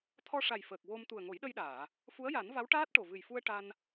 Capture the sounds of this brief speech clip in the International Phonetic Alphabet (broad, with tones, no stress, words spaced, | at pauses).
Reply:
t̪ʰɔ˧ʂa˨˩jfəː˨˩k̚ wo˧m t̪u˨˩ə̯ŋo˨˩˦jɗə˧jɗaː˨˩˨ | fu˧˥ə̯ja˨˩˦n va˧˥wʈaː˦˥t̚ ʈo˨˩vɨ˨˩jfu˧ə̯ ʈa˧n